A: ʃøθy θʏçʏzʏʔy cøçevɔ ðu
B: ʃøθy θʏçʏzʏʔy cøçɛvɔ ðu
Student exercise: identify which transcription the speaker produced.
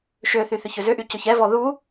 B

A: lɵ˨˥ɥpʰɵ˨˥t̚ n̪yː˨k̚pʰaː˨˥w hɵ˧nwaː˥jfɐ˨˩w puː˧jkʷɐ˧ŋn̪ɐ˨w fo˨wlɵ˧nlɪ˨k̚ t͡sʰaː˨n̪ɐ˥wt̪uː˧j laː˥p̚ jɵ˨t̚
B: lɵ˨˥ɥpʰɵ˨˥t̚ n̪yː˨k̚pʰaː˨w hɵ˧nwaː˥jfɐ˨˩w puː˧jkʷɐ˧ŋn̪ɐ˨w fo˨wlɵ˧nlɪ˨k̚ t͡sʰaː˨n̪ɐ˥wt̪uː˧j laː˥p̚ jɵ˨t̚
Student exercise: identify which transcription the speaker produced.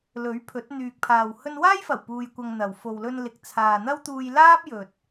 B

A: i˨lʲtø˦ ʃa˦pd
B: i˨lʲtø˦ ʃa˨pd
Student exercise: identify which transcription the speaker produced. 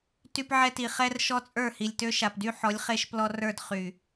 B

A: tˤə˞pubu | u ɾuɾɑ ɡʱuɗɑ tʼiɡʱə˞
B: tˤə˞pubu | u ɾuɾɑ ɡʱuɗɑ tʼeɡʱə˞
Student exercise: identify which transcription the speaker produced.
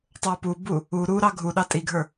A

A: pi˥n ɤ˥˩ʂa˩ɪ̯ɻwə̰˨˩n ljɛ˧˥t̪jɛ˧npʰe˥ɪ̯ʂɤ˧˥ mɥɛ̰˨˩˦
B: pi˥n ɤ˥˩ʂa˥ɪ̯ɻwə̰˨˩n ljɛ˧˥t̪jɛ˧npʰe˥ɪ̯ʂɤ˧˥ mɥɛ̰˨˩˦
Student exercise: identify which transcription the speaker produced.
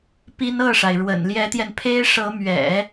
A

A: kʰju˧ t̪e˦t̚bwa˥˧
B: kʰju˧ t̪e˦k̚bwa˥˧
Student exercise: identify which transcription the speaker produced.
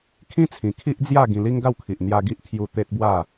A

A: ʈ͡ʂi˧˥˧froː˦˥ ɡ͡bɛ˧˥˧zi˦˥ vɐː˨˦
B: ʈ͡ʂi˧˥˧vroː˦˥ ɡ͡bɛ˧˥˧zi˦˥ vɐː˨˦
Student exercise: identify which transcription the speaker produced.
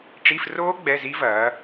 A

